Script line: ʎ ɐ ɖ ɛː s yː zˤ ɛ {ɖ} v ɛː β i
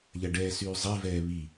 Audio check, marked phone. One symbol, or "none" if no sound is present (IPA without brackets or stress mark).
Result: none